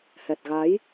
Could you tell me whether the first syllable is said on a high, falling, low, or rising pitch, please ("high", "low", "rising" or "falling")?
low